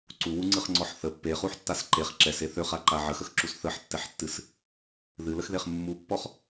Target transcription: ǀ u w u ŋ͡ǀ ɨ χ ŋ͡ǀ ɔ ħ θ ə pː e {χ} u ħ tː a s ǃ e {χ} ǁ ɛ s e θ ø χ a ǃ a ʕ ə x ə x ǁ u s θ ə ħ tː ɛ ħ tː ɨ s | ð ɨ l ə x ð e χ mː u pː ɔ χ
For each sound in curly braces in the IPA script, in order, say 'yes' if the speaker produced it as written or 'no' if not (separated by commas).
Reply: yes, yes